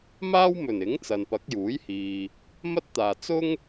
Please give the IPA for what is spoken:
m aː˥ w m ɵ˨˩ n ɪ˨˥ ŋ t͡s ɐ˨ n p ɐ˨˥ k̚ j uː˨˥ j h iː˨ | m ɐ˥ t̚ t̪ aː˨ t͡s ʊ˥ ŋ

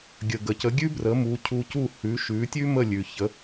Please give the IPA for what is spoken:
ɡʲ ə˩ ɡ ə˩ c ə˩˥ ɡʲ ʉ˥ b r ə˩˥ m u˩˥ cʰ u˧ c u˥˩ h ʉ˩˥ ʃ ʉ˩˥ tʲ ʉ˥ m ə˥˩ lʲ ʉ˩ ç ə˩˥

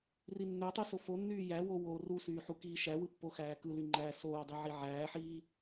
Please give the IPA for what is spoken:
r i nː ø tˤ i s o f o nː yː j æ w o w oː r u s yː ħ u k iː ʃ æ w ɯ pː o x æː k ɯ l y ŋ͡ǃ æː s oː dˤ i ʕ i ʕ æː ħ iː

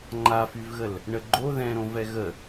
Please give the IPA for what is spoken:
ŋ͡ǃ a f y v ɣ ə l | ɳ ə ɡ͡ǃ o ð ɛ̃ ɾ õ v ɛ ɣ ə

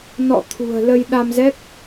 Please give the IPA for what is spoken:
n ɔ̰˧˨ t̪ʰ ṳ˨˩ ə̯ l ə˧ j ɗ a˧ m z ɛ˦˥ k̚

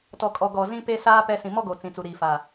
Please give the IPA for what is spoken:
t ɔ˨ kʼ ɔ˨ ɡ ɔ˨ z ĩ˦ p e˦ s aː˦ p ɛ˦ s ĩ˨ m ɔ˦ ɡ o˨ t͡s ĩ˨ t͡s u˨ ɾ iː˨ f a˨

